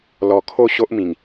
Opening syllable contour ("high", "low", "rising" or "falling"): low